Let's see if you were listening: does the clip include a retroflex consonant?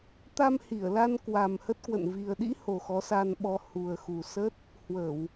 no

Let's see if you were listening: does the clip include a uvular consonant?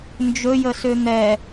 no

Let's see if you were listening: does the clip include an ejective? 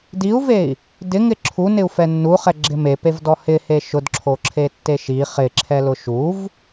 no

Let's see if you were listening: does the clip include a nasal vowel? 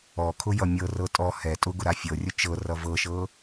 no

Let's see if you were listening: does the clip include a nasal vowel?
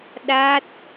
no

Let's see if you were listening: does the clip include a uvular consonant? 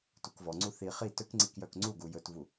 yes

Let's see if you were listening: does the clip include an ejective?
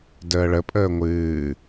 yes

